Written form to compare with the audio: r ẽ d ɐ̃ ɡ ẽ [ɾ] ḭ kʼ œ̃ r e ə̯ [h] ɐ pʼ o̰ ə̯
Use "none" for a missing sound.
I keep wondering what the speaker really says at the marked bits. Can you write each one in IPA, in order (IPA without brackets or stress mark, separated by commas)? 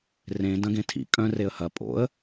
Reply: tʰ, h